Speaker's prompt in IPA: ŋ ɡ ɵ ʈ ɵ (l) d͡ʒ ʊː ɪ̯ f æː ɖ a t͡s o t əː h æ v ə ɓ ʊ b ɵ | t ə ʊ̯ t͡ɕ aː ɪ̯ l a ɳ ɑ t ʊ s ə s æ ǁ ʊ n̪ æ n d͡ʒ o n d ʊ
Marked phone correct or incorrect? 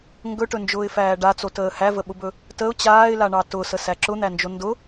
incorrect